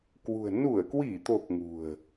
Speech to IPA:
k w ṳ˨˩ ə̯ n u˧˩ ə̯ k w i˧˩ t̪ o˨˩ k̚ ŋ ṳ˨˩ ə̯

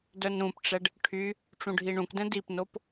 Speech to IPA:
d œ n ɾ ũ p ʈ͡ʂ ɛ ɖ | ʈʰ y | ʈ͡ʂ ũ ɖʱ i ɳ ũ k d ɛ̃ d i p n o p

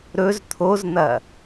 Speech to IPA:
ɾ ɵ z t̪ʰ o z n̪ ɐ

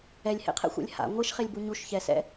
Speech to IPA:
ɛ lʲ h ḛ qʰ ɛ̰ xʷ ɛ̰ lʲ h a̰ ŋʷ ɤ ʃ χ e lʲ b u ɲ u ʃ ç ɛ s ɛ̰

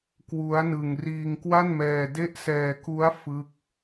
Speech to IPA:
k w u˦˥ a̯ n ɯ˧ ŋ r iː˧ ŋ k w a˥˩ n m ɛː˧ d e˦˥ ʔ s ɛː˧ k u˦˥ a̯ f ɯ˦˥ k̚

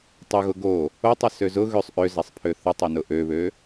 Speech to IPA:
tˤ ʊ ɣ ʊ ɡ o | o tˤ ə s ø z ʊ ɣ ø sˤ ʔ ø z a sˤ pʰ ø θ ʊ tˤ ø n ʊ ʔ ø β ø

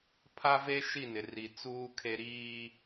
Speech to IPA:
pʰ a˦ v e˦ ʃ i˦˨ n ɪ˨ r i˨ t͡s uː˦ kʰ e˦ ɾ iː˦

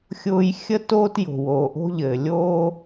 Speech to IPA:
xʲ ʊː˧ j xʲ ə˧ t oː˧ t j o̤˩ w oː˩ ʔ o̤˧ ʎ ɘː˩ lʲ oː˧

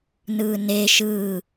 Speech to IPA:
n ɯ n e ʃ ɯ

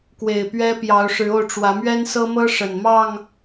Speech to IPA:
k w e˨˩ ɪ̯ p ɥ ɛ˦ p j ɑ˨˦ ʊ̯ ʂ ɻ̩˨˦ o˧ ʊ̯ ʈ͡ʂ w ä˨˦ m ɥ ɛ˦ n s ɤ˦ m ɤ˦ ʂ ə˨˩ n m ɑ˥˨ ŋ

